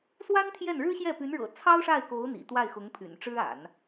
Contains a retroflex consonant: yes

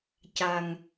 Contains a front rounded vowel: no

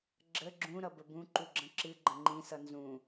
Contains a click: yes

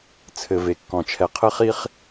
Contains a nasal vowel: yes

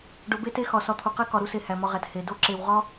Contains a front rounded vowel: no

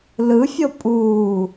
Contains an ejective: yes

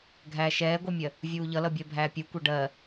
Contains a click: no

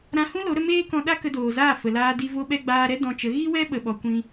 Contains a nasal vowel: yes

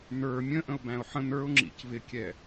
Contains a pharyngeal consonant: yes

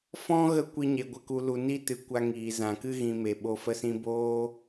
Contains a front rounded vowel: no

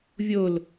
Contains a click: no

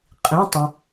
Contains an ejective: yes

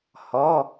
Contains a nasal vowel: no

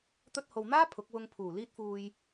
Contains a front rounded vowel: no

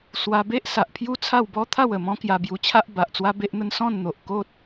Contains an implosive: no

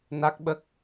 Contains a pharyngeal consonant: no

